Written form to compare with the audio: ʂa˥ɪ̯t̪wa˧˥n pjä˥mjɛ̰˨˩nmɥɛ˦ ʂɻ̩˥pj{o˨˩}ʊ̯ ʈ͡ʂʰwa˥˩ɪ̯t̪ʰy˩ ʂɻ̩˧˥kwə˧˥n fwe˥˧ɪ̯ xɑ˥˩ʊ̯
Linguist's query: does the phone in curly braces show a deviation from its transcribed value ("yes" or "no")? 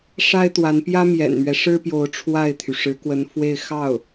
yes